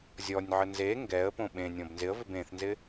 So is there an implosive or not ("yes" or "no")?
yes